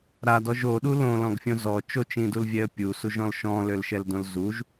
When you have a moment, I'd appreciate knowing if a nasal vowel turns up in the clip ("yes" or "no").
yes